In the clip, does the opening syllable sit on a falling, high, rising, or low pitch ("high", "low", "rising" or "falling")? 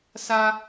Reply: high